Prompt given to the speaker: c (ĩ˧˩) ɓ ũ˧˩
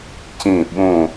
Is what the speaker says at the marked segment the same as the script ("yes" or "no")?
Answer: yes